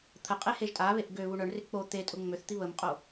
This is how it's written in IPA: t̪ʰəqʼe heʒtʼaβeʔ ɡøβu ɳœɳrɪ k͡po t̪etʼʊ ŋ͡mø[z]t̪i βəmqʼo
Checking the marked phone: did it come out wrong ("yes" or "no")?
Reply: yes